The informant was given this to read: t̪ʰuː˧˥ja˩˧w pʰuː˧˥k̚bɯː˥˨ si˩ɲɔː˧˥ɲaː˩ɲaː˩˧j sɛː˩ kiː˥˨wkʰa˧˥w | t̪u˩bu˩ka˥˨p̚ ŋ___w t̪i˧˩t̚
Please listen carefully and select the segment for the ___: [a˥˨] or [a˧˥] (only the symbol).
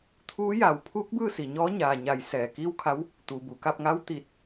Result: a˧˥